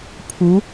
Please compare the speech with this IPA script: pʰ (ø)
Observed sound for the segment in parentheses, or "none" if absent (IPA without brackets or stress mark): u